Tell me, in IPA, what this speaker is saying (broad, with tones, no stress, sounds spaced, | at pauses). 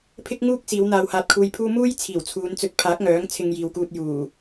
pʰ ɪ˥ k̚ ŋ uː˥ k̚ s iː˨˧ w n̪ aː˨ w h aː˨ t̚ kʰ uː˧ j pʰ uː˥ m uː˥ j t͡sʰ iː˨˩ w t͡sʰ uː˨˧ n t͡s ɵ˧ t̚ pʰ aː˨˥ k̚ ŋ œː˨˥ ŋ t͡sʰ ɪ˧ ŋ j iː˨ w k uː˧ t̚ j uː˨˩